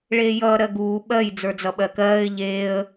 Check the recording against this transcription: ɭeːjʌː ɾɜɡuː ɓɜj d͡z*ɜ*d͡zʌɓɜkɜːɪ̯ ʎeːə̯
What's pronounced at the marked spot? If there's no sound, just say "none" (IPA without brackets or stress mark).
ə˞